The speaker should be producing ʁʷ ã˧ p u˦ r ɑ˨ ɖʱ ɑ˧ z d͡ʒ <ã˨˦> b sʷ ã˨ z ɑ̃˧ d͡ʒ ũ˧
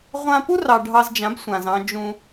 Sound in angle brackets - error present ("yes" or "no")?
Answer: no